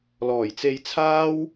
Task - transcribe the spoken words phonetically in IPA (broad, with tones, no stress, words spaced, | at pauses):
lɔː˨˩jt͡se˧jt͡sʰaː˥w